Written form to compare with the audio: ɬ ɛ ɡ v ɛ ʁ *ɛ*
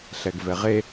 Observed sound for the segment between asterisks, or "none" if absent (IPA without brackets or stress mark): e